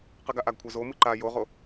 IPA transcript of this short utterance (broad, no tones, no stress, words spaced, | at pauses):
qɨɡaʔaɡkʷʰa zomɨ ǃa joʁo